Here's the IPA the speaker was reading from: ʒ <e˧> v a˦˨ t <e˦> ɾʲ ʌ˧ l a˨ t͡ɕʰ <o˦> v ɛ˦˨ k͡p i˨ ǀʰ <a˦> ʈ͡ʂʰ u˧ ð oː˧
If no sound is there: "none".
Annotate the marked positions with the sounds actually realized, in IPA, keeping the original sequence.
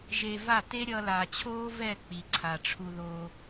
e˧, e˦, oː˦, a˨

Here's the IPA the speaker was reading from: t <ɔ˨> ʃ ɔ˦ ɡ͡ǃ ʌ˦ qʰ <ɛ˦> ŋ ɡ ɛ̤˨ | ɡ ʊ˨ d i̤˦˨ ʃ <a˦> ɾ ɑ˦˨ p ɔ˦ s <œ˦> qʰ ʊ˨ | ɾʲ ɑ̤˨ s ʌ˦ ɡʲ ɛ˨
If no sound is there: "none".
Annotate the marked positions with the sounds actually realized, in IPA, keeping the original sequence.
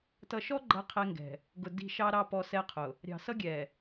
ʌ˨, ɛ˦, ɑ˦, ɛ˦

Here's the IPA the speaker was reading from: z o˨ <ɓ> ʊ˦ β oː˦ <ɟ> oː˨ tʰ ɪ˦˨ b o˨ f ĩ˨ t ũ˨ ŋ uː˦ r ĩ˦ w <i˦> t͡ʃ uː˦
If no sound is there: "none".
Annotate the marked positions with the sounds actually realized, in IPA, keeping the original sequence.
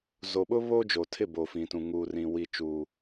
ɓ, d͡ʒ, i˦

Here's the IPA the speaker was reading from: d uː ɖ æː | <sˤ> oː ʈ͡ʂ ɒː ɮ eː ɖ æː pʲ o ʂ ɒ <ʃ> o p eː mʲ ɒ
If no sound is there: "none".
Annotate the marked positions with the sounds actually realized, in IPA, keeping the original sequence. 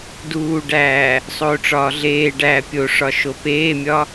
sˤ, ʃ

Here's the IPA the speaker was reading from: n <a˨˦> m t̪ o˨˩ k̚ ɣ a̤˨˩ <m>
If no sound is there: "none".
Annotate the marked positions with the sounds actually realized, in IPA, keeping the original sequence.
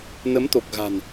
ə˨˦, n

